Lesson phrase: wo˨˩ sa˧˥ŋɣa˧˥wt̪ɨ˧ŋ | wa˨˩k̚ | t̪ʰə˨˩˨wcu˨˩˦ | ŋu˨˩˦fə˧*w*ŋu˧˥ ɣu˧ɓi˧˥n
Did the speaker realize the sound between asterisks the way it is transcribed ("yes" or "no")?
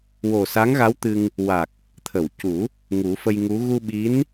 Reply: no